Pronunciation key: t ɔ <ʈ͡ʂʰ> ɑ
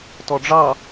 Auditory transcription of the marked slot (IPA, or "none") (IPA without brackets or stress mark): ɖ͡ʐ